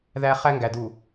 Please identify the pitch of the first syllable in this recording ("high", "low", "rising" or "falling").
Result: high